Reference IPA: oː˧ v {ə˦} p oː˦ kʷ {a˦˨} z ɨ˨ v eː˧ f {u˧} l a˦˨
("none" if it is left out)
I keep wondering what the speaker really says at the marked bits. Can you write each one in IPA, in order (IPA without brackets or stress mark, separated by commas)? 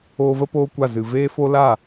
ə˦, a˦˨, o˧